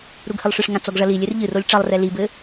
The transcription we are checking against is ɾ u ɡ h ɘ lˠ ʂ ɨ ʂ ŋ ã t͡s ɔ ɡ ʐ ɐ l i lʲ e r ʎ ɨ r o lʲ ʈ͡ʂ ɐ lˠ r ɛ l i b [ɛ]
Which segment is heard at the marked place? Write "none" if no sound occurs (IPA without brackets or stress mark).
ɘ